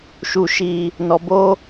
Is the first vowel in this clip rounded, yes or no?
yes